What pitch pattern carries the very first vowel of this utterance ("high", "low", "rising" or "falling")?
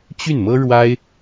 falling